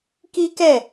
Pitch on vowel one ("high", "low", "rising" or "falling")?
high